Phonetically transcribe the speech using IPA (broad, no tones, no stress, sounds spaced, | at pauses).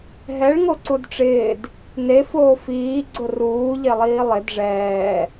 ɦ ɛ ɭ ŋ o ǀ u d ʈ͡ʂ ɪː d | n e f oː f iː ɡ͡ǀ ʊ r uː ʎ e lˠ iː lˠ ɪ d ʐ ɛː